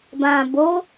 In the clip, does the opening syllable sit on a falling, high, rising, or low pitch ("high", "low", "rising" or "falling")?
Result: low